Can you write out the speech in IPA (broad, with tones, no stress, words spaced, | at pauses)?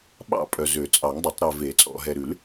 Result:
ɓɑ̰˥˨pʼœ˨zø˨˩˦t͡sʼɑ˨˩˦ŋ dˤɵ˨˩˦tˤɾœ˨ve˨˩˦ t͡sʼɔ̰˨ɦɛ˨ɾʉ˨˩˦l